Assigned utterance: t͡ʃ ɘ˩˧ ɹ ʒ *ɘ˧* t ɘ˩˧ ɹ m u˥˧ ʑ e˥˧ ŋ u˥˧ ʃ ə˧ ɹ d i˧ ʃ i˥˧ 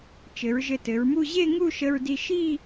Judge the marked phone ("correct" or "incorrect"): correct